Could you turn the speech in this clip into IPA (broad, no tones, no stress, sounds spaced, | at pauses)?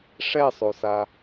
ʂ ɛ sˤ o s a